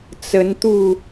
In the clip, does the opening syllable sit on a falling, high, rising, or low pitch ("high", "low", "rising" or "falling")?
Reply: rising